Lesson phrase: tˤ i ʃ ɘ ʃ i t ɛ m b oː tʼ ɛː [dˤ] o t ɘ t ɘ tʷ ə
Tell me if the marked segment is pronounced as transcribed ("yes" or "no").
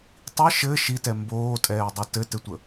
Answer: yes